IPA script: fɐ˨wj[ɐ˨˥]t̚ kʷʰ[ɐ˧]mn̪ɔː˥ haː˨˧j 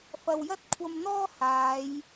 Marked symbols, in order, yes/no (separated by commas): no, yes